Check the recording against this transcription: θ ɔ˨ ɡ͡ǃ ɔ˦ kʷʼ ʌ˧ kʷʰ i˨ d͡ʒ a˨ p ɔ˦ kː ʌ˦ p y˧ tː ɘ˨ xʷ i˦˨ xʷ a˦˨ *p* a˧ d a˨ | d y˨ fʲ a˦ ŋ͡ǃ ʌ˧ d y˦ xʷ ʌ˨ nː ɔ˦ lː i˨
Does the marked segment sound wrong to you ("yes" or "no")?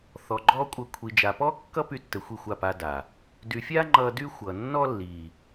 no